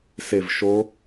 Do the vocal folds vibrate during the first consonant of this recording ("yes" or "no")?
no